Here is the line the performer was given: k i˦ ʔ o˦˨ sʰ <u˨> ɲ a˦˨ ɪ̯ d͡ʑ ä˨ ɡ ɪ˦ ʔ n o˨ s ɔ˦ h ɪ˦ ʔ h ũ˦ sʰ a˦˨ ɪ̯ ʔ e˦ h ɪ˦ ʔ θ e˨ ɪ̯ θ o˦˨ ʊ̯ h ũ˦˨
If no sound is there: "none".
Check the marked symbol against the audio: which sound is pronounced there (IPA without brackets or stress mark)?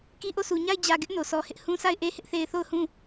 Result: u˨